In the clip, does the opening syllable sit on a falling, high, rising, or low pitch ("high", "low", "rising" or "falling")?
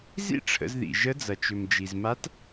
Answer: high